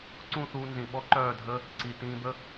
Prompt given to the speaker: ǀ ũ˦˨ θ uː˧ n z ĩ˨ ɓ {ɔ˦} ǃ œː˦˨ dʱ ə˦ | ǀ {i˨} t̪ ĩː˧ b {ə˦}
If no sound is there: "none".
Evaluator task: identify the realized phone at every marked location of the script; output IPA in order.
ɔ˦, i˨, ə˦

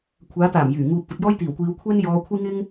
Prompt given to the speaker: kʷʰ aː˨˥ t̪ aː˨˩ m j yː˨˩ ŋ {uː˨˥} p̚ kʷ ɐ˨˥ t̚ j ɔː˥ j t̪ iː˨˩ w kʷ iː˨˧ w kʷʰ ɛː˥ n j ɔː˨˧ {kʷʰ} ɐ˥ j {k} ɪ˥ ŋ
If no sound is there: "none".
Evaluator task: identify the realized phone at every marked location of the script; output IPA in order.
uː˨˥, kʷʰ, ŋ

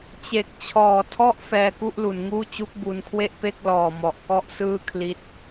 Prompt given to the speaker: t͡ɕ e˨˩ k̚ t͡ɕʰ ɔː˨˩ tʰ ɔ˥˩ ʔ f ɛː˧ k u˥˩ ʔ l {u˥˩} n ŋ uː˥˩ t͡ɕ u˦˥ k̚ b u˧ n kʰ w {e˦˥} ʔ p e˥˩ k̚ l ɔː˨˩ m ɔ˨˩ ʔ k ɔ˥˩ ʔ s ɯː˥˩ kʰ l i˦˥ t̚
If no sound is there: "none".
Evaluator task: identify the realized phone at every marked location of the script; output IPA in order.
u˩˦, e˥˩

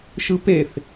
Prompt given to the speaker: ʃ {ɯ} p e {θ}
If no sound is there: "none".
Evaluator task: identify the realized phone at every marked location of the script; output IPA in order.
ɯ, θ

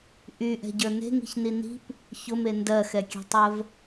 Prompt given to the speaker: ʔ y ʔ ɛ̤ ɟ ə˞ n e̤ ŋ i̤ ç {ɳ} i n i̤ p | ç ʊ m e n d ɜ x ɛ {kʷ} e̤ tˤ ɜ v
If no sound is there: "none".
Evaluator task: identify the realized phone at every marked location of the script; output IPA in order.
n, kʲ

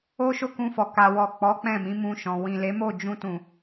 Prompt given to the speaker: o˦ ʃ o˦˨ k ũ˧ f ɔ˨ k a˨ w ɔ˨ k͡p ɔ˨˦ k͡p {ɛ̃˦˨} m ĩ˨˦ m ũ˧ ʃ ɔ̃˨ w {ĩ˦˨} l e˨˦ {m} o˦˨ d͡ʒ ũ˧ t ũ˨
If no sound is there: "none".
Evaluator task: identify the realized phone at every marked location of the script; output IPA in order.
ɛ̃˦˨, ĩ˨, m

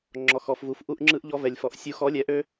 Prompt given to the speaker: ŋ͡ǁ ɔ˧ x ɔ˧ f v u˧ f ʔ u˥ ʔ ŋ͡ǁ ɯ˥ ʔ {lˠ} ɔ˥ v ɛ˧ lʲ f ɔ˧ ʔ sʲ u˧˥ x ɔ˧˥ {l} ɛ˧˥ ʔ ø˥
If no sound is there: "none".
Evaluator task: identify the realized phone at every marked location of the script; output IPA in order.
ʎ, lʲ

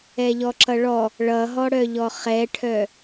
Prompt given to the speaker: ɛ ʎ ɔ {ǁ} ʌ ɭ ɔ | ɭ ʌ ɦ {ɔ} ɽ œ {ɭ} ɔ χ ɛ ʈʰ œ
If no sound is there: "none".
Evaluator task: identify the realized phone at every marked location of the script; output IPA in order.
ǁ, ɔ, ʎ

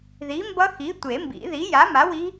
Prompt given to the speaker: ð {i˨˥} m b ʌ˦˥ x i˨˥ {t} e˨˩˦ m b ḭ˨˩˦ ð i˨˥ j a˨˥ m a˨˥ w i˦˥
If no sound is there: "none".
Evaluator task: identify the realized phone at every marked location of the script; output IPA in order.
i˨˥, tʷ

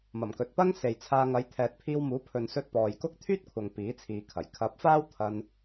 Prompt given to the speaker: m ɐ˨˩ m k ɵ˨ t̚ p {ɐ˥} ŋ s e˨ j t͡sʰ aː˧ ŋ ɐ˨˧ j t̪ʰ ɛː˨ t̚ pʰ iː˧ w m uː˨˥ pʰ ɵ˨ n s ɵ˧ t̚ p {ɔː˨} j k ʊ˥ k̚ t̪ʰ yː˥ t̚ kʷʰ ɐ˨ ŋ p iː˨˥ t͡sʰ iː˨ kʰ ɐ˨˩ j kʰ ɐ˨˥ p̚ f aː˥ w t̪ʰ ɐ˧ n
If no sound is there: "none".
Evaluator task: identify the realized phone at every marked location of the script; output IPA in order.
ɐ˥, ɔː˨

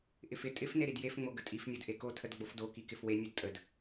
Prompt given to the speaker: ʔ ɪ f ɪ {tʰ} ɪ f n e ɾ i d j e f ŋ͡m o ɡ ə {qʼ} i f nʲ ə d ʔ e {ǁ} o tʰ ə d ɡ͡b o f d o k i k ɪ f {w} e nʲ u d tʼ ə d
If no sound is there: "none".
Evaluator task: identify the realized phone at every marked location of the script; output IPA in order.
tʼ, tʼ, k, w

